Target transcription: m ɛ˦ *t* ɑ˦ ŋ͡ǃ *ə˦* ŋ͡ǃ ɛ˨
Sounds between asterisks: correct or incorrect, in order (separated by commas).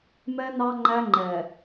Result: incorrect, incorrect